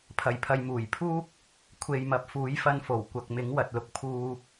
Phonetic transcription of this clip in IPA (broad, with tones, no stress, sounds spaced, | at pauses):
pʰ ɐ˨ j pʰ ɐ˨ j m uː˨˩ j pʰ uː˥ k̚ | kʷʰ e˨ j m ɐ˨ p̚ f uː˨˥ j f ɐ˧ n f o˨˩ w kʷ ɐ˨ k̚ m ɪ˨˥ ŋ w ɐ˨ t̚ l ʊ˨ k̚ pʰ uː˨